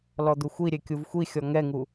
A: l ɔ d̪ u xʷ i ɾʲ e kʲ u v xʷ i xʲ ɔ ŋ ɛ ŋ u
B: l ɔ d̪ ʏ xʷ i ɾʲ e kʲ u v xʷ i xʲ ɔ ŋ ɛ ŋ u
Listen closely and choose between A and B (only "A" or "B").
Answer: A